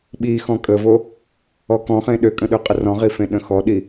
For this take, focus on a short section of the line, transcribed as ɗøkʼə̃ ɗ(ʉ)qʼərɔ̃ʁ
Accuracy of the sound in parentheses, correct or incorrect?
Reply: incorrect: ø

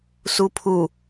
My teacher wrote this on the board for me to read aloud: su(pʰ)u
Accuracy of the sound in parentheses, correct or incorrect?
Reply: correct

